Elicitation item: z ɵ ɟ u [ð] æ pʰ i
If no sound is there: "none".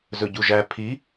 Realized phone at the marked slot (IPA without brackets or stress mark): ʒ